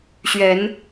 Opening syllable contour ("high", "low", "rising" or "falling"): rising